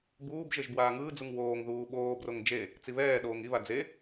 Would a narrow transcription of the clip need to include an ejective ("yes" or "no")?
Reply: no